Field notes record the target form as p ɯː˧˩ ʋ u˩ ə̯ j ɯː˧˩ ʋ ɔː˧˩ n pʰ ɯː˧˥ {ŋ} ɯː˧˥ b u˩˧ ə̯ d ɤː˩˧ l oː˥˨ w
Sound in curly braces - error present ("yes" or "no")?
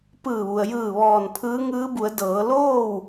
no